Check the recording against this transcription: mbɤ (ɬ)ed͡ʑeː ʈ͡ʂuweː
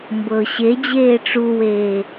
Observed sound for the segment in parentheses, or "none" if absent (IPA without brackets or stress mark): ɕ